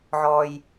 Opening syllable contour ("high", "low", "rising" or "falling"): low